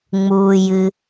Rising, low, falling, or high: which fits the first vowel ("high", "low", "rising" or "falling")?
low